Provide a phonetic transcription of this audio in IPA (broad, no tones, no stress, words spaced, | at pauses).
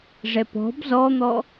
ʐɛpɔ̤b zɔn̪ɔ